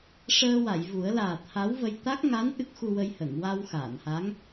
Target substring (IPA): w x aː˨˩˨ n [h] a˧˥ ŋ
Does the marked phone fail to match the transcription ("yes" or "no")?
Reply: no